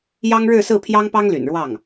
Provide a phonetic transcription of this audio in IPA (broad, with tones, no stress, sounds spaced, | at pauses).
j ɑ˥ ŋ ɻ ɻ̩˥˧ s ɹ̩˥˩ pʰ j ɑ˥ ŋ p ɑ˥ ŋ l y̰˨˩ n ɻ w ɑ˥˩ ŋ